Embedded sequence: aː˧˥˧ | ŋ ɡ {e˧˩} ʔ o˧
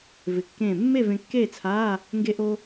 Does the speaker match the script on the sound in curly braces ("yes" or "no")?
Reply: no